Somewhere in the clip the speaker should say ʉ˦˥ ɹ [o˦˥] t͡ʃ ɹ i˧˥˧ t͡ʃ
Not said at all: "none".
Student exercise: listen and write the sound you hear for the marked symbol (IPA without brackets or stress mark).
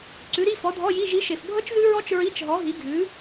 ɔ˦˥